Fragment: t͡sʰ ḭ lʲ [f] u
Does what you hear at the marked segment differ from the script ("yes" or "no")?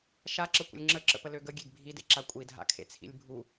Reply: yes